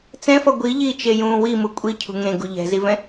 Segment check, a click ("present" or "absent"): absent